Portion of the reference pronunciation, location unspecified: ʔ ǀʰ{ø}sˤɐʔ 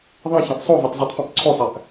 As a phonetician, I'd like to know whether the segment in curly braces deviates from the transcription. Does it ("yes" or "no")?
no